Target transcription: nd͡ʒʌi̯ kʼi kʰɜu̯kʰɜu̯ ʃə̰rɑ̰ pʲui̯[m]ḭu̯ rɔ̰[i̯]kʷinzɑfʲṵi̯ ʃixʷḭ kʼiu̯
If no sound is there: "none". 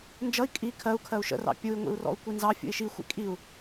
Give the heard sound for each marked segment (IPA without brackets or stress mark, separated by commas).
ŋʷ, u̯